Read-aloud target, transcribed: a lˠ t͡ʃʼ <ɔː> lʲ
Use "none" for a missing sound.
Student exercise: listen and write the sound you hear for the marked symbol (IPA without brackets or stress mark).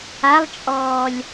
ɔː